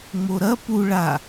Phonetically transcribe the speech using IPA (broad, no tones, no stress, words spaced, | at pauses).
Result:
ŋ͡moɾɐ pu ɭa